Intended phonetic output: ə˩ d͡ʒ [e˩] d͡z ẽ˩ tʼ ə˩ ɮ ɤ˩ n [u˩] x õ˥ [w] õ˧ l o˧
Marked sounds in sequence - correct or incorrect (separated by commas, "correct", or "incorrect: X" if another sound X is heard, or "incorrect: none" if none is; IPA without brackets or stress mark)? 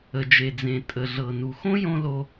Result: correct, correct, incorrect: j